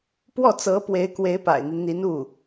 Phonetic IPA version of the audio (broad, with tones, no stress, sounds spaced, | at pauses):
p w ɔ˥˩ t͡s ɤ˧˥ p w e˧˥ ɪ̯ k w e˧˥ ɪ̯ p a̰˨˩ ɪ̯ n̪ i˦ n n̪ i˧˥ n u˥˩